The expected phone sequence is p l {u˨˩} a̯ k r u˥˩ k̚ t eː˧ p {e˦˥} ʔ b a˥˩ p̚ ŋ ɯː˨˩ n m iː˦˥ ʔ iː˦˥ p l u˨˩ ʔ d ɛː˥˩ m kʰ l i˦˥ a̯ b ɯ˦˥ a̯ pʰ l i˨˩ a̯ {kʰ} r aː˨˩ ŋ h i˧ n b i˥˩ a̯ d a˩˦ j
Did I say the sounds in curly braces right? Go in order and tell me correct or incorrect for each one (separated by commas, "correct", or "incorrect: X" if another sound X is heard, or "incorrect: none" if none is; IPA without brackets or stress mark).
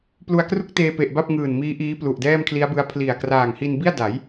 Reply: incorrect: u˧, incorrect: e˨˩, incorrect: k